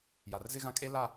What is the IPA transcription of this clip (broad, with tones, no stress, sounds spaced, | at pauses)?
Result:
j a˨ r z ɪ˦ ɣ ã˦ kʼ e˦ l a˦˨